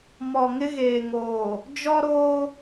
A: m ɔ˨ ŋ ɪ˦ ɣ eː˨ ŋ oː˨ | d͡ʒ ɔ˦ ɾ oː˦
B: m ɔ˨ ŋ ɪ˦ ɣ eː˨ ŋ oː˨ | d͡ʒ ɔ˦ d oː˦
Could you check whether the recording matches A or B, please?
A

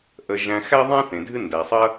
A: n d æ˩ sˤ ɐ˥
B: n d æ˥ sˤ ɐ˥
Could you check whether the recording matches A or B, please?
A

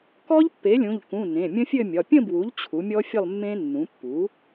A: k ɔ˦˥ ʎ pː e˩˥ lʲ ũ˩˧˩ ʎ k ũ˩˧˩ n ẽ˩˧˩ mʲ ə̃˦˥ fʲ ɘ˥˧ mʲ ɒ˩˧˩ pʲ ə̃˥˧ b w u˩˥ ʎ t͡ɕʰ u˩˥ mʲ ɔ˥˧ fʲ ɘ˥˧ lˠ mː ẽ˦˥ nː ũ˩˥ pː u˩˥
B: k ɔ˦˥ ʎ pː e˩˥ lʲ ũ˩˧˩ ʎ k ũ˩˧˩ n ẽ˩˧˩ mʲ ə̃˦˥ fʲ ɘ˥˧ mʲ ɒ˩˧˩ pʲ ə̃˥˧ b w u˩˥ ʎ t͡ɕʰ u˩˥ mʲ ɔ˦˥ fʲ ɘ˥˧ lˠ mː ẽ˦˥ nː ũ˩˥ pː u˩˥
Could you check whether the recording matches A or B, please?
B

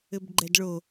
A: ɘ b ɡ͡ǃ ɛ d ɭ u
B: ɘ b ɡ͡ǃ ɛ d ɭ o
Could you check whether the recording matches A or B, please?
B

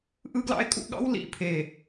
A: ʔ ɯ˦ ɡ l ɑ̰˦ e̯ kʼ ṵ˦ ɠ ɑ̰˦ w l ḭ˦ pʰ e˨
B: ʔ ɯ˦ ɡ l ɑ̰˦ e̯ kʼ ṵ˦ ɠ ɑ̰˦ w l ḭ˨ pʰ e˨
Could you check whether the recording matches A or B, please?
B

